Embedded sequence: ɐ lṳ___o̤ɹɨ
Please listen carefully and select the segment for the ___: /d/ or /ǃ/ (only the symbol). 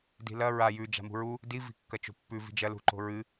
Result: ǃ